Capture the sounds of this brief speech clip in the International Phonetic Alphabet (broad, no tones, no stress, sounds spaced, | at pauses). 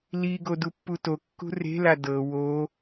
l i ɡ o d u pː u t o kː ṳ r e̤ l a d ɤ w o